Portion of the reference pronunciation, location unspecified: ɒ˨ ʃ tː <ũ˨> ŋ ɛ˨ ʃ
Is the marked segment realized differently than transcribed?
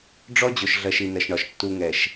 yes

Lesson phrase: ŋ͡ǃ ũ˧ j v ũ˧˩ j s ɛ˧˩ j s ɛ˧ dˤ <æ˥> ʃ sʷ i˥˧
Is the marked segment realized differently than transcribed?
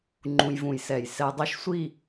no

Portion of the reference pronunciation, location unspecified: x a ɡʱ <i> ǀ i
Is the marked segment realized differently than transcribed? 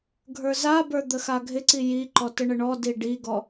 yes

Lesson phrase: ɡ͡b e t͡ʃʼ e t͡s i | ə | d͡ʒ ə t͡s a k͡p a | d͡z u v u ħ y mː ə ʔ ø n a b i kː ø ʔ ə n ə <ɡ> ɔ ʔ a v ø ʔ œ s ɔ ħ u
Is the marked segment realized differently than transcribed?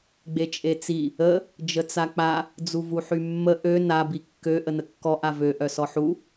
yes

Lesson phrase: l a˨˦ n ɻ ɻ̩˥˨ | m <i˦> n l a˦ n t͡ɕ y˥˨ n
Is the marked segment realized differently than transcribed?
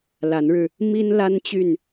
no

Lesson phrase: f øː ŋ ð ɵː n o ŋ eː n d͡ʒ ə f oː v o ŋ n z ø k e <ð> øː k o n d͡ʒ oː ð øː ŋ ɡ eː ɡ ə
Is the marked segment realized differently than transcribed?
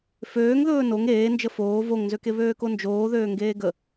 yes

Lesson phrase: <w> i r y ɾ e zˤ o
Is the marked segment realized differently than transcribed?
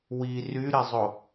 no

